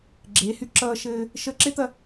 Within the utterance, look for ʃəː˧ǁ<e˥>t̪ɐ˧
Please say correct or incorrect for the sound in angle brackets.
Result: correct